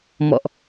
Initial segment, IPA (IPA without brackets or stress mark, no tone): m